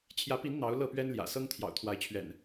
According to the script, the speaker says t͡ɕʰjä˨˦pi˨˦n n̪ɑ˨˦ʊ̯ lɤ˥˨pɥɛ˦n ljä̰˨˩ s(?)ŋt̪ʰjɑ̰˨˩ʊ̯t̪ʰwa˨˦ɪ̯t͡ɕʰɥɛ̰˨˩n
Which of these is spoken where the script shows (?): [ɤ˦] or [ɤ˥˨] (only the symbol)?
ɤ˦